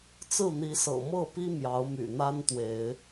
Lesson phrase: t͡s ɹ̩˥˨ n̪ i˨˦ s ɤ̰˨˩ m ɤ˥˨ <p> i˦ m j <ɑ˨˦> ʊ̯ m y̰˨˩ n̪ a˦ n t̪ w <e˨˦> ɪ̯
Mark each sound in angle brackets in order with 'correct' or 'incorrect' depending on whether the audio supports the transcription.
correct, correct, correct

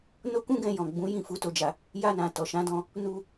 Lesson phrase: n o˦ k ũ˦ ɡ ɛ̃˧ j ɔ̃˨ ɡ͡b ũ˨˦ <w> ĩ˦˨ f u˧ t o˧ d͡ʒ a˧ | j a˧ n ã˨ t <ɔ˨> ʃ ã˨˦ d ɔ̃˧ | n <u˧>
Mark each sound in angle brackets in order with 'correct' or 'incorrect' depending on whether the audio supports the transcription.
incorrect, correct, correct

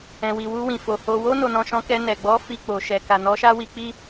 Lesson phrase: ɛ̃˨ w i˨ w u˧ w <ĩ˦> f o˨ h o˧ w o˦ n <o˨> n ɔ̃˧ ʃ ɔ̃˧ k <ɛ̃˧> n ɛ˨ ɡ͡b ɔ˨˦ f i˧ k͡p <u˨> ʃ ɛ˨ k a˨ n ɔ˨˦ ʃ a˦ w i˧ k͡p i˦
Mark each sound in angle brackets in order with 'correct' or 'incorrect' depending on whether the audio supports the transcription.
incorrect, incorrect, incorrect, incorrect

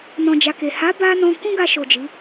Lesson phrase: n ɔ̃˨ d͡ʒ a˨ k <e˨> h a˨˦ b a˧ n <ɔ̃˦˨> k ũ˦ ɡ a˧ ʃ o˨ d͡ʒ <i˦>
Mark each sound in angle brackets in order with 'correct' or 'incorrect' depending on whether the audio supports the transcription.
correct, incorrect, incorrect

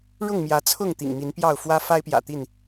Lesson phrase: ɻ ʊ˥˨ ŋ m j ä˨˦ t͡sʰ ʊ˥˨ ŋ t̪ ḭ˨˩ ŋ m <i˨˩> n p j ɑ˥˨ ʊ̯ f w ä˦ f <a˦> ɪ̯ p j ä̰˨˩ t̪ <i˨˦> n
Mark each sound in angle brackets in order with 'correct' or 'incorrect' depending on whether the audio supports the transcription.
incorrect, correct, incorrect

